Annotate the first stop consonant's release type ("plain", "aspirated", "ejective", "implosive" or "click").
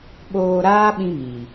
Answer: implosive